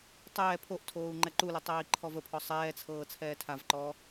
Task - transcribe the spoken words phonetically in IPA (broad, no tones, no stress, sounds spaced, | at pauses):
tˤ ɛː pʰ o ʔ tʰ oː u̯ ŋ͡ǃ ɛ ǃ u l ə tˤ ɛː i̯ ǃʰ ɔ v ə pʰ ɔ sˤ ɛː t͡sʰ ɤː t͡sʰ ɛː tʰ a v ǃ ɔː